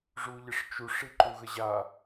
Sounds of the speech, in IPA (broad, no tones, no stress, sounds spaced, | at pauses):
ʐ u ʎ ɘ ʂ t͡ʃ u ʂ i ǃ u ɣ ə ʑ a